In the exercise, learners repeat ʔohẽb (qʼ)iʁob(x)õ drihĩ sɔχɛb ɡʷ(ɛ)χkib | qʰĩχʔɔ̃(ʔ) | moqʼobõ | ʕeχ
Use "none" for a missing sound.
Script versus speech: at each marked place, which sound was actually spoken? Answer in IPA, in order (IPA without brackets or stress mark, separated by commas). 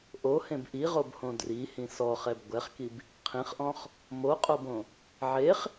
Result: ʔ, h, ɛ, χ